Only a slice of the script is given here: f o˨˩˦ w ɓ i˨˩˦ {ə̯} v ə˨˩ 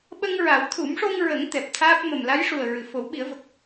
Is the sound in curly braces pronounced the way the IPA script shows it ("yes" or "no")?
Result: yes